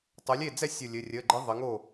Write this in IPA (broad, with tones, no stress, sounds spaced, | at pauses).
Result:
tˤ ʊ˩˧ lʲ e˥˩ d͡z ɛ˥˩ sʲ ʊ˧˩ lʲ ɘ˩˧˩ rʲ ə˩˧˩ ɡ͡ǃ ə˧˥ ðˤ ɘ˩˧ ŋ o˥˩